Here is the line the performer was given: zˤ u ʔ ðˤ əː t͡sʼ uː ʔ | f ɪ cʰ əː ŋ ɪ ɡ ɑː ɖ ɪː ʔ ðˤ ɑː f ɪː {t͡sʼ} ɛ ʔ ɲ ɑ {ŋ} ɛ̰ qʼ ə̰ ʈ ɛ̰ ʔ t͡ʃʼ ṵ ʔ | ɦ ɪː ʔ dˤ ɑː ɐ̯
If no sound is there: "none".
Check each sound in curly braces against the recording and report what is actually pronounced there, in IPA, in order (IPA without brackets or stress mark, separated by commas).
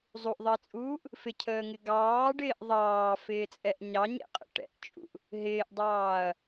t͡sʼ, ɲ